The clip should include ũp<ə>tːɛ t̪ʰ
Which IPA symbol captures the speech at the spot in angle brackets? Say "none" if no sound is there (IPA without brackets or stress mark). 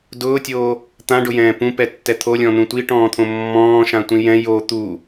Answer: ɛ